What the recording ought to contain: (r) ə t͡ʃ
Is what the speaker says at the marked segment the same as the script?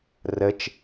yes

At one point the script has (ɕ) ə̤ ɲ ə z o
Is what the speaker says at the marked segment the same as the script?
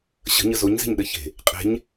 yes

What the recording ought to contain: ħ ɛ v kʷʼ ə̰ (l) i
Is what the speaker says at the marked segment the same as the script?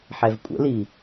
yes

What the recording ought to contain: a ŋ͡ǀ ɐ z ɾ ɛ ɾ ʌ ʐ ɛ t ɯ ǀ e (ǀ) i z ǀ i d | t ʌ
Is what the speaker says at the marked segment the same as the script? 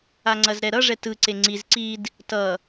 no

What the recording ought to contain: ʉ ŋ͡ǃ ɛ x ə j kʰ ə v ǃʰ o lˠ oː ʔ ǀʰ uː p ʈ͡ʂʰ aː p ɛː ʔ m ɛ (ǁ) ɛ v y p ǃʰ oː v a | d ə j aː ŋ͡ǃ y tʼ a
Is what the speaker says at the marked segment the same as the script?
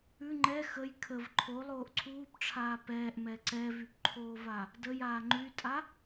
no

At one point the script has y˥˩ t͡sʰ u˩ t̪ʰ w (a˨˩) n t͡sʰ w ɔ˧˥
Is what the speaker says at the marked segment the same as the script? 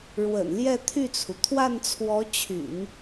no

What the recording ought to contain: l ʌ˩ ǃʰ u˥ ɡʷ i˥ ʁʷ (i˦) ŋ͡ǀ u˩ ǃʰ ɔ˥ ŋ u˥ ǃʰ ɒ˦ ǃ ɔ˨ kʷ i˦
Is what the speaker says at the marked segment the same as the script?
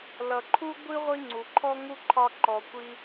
yes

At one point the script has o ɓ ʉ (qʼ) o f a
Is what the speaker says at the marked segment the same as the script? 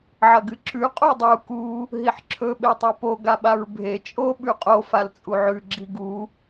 yes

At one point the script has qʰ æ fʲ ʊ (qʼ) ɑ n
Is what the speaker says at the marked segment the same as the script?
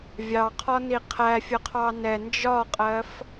no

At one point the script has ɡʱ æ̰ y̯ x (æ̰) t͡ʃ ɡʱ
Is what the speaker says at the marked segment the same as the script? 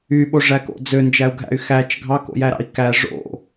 no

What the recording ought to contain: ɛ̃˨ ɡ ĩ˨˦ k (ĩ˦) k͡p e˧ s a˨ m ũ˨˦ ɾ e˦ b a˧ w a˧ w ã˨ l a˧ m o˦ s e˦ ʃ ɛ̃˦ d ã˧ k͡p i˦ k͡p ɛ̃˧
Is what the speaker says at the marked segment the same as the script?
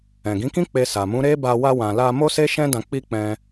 yes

